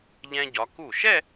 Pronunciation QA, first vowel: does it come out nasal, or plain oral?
nasal